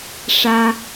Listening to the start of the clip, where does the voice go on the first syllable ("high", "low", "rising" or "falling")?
high